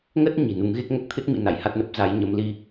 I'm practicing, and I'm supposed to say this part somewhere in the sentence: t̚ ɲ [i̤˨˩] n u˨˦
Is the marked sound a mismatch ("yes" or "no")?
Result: no